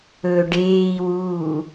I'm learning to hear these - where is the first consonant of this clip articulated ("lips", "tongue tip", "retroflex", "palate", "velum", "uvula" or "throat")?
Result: retroflex